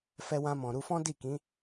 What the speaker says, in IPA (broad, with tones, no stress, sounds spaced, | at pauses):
f ɛ˧ w ã˧ m ɔ̃˨ ɾ u˧ f ɔ̃˦ d i˦˨ k ĩ˨˦